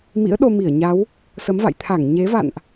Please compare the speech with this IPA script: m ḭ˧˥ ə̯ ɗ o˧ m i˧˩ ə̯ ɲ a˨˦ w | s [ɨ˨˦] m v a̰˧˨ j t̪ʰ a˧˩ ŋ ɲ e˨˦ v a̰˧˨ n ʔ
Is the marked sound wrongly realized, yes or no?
yes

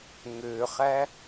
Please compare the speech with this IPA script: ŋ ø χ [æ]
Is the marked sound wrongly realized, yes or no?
no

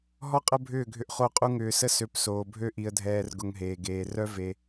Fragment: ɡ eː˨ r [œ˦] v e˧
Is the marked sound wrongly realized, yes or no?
no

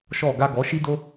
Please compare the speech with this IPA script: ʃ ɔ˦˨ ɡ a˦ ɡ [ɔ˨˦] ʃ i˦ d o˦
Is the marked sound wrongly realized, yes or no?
no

